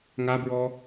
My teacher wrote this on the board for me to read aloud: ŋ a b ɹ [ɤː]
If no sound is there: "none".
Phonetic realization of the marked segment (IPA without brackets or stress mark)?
ɔː